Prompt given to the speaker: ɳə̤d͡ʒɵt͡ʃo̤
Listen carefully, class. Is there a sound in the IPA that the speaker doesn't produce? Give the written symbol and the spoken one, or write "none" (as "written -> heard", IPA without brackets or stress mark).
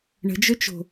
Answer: none